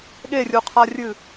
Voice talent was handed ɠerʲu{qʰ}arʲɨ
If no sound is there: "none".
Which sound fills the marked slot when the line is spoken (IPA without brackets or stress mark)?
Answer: qʰ